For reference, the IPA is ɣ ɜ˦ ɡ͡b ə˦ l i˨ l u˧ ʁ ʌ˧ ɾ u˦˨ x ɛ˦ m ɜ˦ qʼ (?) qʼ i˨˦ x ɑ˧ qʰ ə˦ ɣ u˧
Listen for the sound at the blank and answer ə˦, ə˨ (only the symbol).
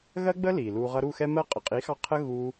ə˨